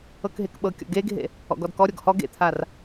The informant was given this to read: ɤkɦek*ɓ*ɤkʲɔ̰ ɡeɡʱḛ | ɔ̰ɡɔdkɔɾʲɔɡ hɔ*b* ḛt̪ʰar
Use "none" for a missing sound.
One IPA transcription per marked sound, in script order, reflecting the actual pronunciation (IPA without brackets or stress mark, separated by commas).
ɓ, ɡ